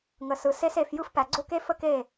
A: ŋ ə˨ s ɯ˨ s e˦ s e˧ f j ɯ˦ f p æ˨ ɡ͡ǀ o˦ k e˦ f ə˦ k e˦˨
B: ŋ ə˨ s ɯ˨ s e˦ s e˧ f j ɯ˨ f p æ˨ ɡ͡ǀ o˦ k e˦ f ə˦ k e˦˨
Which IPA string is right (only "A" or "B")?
A